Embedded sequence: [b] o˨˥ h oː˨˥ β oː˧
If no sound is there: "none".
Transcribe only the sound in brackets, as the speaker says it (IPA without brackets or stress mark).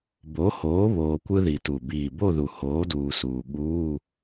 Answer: b